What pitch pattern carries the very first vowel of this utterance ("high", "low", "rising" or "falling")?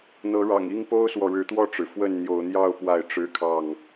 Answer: rising